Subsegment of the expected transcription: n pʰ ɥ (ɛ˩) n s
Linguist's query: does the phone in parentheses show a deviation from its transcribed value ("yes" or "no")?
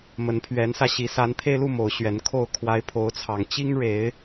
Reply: yes